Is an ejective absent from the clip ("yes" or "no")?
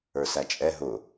no